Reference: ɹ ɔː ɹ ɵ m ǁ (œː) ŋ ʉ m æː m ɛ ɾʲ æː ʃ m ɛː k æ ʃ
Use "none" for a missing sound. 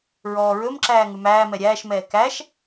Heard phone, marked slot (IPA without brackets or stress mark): æː